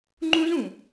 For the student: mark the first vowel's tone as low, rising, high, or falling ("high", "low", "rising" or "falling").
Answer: high